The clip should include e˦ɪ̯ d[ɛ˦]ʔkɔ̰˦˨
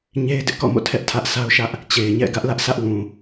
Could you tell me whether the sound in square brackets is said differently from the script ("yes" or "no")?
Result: yes